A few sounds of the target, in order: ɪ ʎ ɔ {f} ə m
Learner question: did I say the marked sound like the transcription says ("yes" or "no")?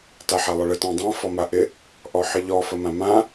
yes